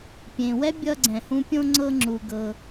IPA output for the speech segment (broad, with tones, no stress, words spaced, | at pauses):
pʲẽ˩wɛ˥ bʲʌ˦ɡ͡ǀɛ̃˩hũ˦pʲõ˥ ŋ͡ǀɤ˦ŋ͡ǁu˩ ɡɤ˨